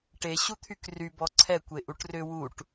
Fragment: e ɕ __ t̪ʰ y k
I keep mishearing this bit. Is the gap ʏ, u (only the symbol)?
u